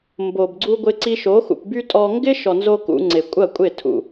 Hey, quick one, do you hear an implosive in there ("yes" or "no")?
no